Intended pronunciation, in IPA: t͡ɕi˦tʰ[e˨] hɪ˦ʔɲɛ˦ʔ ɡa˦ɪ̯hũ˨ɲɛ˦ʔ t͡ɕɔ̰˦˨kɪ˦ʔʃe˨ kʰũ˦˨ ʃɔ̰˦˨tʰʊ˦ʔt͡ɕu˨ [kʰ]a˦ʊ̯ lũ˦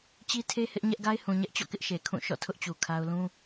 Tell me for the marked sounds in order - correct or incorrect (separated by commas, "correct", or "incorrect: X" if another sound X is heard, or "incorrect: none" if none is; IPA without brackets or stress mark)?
incorrect: e˦, correct